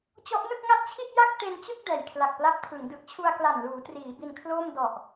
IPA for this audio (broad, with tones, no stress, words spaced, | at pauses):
t͡ɕɔ˦˥ʔnɯ˥˩k̚ŋa˥˩t̚t͡ɕʰi˥˩t̚ ja˥˩k̚te˧nt͡ɕɯ˥˩k̚ dɛː˨˩jkʰla˨˩k̚pla˦˥p̚tʰɯ˩˦ŋ dɯ˨˩k̚t͡ɕʰu˧a̯kla˨˩n luː˩˦triː˩˦ bi˧nkʰloː˥˩m dɔ˨˩ʔ